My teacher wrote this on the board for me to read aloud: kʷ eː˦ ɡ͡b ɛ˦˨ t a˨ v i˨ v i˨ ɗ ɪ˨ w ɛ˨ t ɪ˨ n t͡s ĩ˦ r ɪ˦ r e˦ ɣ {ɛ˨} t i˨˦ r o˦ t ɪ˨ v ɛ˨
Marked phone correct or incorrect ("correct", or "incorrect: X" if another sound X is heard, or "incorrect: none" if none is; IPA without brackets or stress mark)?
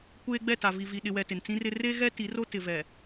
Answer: incorrect: ɛ˦